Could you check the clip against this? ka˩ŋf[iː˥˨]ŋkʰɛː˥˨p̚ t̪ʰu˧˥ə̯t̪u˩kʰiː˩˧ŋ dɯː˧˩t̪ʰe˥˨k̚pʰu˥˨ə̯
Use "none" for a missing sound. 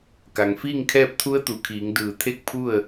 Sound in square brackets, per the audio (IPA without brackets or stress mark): iː˥˨